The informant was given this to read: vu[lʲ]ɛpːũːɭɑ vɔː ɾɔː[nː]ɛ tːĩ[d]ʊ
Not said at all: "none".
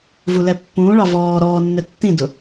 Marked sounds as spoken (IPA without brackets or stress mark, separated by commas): l, nː, d